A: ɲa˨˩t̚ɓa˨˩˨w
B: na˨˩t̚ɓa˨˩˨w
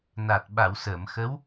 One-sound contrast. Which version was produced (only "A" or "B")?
B